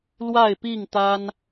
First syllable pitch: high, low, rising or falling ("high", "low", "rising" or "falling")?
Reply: falling